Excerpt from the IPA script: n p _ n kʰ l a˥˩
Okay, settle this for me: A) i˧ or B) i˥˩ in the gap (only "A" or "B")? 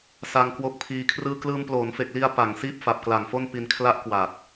A